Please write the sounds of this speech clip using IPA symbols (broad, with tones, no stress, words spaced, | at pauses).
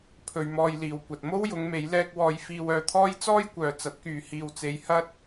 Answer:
pʰɵ˧ɥmɔː˧jliː˨wkʷɐ˨t̚ mo˥wjʊ˨˧ŋme˨˧j lɛː˧k̚ wɔː˧jfiː˧wœː˧t̪ʰɔː˥j t͡sɔː˥jkʷœː˨t͡sɐ˨˥t̚kyː˨ hiː˨wt͡se˨˧j hɐ˥t̚